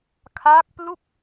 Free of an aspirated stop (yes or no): no